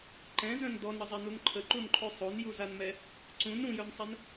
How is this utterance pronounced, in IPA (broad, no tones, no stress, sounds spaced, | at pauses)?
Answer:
ǃ ɛ̃ z œ̃ n d ɔ n ɾ ə zˤ ɛ n u n ǃʰ ə ǃ u n ǃʰ o sˤ o n j u z a n m ɛ | ǀ ũ n ɾ ũ j œ n sˤ ɛ n